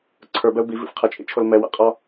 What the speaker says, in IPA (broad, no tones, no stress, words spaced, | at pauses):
ǀʰə˞bɛʊ̯ bivḭf qʰʌt͡ʃʼḭt͡ʃʰol mɛwa̰qʼɒ